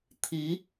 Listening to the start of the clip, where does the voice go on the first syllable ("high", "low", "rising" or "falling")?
rising